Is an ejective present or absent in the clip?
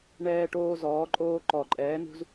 present